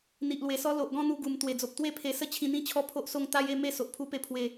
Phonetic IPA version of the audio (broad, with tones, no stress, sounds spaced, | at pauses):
n̪ i˨ ʔ l w e˨˩ s ɔ˦ l o˨ ʔ ɡ ɔ̃˥˧ n̪ u˧ ɡ u˨˩ m t̪ w e˨˩ d͡z o˨ p̚ t̪ w e˥˧ pʰ e˧ s ə˥˧ t͡ɕʰ ĩ˧ n̪ ĩ˦ t͡ɕʰ ɔ˦ pʰ o˦ ʔ s o˥˧ ŋ t̪ a˦ j e˥˧ m e˥˧ s o˨ ʔ pʰ u˧ p e˧ pʰ w e˧